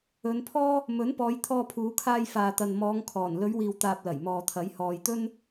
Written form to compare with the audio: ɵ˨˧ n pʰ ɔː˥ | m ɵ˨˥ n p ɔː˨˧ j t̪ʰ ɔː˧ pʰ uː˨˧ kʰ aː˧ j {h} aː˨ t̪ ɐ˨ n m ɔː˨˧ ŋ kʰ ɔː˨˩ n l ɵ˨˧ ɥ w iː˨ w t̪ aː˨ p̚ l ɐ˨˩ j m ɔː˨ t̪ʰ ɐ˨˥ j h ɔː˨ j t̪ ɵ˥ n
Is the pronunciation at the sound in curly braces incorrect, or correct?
incorrect: f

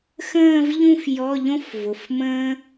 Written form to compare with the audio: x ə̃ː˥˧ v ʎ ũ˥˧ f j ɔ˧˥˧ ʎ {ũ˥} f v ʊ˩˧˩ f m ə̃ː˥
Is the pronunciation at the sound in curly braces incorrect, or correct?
incorrect: õ˥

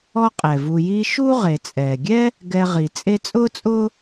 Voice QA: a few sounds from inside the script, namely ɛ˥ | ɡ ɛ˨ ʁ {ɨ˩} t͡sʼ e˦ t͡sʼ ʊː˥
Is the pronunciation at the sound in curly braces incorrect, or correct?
incorrect: i˩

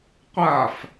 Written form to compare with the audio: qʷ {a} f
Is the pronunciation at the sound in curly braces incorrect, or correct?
correct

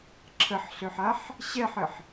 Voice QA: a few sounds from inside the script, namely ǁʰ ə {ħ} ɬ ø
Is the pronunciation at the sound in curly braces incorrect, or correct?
correct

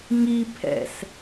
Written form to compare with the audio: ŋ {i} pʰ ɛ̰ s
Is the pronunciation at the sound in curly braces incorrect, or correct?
correct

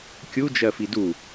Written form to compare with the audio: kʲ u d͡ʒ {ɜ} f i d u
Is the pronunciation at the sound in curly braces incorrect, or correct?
correct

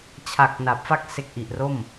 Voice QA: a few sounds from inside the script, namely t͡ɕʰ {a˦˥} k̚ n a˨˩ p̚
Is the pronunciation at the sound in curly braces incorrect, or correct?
incorrect: a˨˩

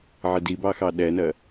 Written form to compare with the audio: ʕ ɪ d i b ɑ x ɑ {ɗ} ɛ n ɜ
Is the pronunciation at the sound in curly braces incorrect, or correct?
correct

